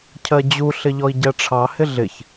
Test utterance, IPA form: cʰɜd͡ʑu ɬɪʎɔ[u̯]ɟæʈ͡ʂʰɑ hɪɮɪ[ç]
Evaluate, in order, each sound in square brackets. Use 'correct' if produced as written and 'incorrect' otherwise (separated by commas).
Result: incorrect, correct